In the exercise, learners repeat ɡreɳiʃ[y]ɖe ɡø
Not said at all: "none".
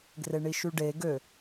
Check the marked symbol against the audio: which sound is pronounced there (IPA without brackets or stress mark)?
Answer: y